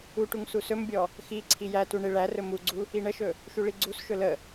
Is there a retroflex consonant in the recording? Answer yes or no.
yes